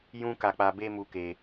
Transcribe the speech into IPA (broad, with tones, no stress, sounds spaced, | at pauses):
j ũ˦ k a˧ k͡p a˧ b e˦ m u˧ k e˧